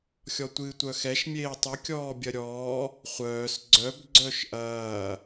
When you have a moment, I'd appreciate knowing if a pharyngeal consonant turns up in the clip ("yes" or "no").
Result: no